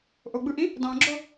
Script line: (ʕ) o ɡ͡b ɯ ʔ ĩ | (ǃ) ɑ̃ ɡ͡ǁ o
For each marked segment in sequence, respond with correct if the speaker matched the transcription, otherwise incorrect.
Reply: incorrect, incorrect

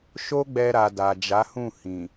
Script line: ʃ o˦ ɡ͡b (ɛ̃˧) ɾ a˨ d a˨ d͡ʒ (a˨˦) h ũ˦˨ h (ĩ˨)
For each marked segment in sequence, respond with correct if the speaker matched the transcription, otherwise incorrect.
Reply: incorrect, correct, correct

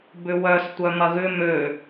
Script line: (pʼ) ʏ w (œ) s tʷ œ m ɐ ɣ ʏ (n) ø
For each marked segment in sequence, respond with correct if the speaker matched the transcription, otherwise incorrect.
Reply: incorrect, correct, incorrect

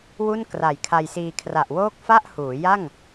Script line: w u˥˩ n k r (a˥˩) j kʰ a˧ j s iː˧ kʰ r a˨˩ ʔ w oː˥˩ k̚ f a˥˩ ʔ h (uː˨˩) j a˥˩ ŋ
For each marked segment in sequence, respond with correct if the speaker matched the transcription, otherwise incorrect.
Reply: incorrect, incorrect

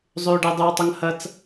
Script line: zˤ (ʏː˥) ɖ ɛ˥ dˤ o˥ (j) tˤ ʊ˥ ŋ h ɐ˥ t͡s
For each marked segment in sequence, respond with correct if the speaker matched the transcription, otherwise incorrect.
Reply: correct, incorrect

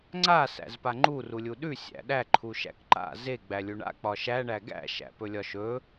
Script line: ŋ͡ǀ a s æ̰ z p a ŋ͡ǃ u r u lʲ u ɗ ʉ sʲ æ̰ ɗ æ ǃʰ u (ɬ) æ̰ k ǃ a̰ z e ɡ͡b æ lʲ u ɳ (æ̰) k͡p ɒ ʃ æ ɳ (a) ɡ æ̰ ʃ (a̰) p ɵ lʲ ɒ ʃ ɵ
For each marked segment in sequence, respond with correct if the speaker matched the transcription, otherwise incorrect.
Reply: incorrect, incorrect, incorrect, incorrect

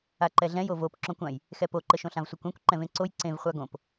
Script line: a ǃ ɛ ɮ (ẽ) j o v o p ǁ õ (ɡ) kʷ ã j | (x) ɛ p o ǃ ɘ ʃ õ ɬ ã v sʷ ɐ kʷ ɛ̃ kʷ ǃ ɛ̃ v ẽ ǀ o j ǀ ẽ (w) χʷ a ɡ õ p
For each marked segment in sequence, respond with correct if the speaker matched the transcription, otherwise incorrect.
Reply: incorrect, incorrect, correct, incorrect

